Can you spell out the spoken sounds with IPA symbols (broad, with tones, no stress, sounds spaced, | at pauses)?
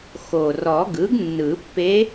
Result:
x o˨˩ r ɔ˨˩˦ ɡ ɯ˩˥ ɡ nː ɯ˨˩˦ pː e˧˥